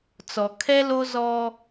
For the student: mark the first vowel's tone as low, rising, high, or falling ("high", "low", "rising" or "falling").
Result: low